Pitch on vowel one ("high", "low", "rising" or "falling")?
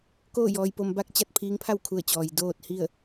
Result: falling